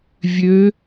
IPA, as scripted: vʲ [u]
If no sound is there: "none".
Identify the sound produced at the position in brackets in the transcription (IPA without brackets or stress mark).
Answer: ø